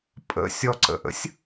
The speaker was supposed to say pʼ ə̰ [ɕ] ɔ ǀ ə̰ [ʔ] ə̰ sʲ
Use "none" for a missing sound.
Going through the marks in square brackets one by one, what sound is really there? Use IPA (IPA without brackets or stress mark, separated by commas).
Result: sʲ, ʔ